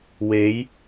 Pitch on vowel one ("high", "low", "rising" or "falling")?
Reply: rising